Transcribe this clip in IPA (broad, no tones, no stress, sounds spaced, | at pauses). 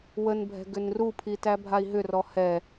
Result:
w ə n bʱ ɛ̤ ɡ ʏ n r u pʰ i t æ bʱ a i̯ ɦ ʏ r ɔ h ɛ